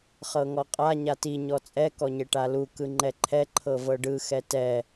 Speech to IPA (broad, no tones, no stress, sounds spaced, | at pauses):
χ ɤ ŋ ɔ qʼ a ɲ a t i ɲ ɔ t͡sʼ ɛ k ɔ ɲ e ʈ a l u k ɯ ŋ͡ǃ ɛ ǃʰ ɛ ǃʰ ɤ v ɤ ɖ ɯ x ɛ t ɛ